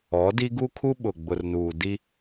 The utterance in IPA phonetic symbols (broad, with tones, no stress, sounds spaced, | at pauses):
ɔ˨˦ d i˦ ɡ u˦ kʰ u˦ ɓ ʊ˨ ɡ͡b ʊ˨ r n uː˨ d i˦